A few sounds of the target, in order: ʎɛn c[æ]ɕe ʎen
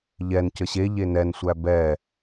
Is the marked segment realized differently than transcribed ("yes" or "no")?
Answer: yes